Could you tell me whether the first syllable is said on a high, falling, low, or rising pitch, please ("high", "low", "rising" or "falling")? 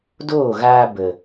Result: falling